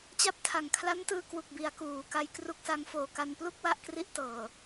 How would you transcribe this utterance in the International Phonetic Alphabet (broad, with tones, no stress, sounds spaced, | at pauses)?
t͡ɕ a˥˩ p̚ tʰ a˨˩ ŋ kʰ l a˦˥ n t ɯː˧ k w u˨˩ k̚ b i˩˦ a̯ k uː˩˦ k a˧ j k r u˦˥ k̚ s a˦˥ ŋ f oː˨˩ k a˧ n p l u˥˩ k̚ w a˥˩ ʔ k r i˥˩ ʔ t ɤː˨˩